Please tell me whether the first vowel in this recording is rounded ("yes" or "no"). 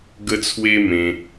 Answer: no